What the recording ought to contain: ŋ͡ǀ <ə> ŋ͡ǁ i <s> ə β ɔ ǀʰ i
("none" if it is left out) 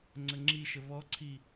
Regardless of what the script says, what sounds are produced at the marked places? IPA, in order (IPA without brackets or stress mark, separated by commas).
ə, ʃ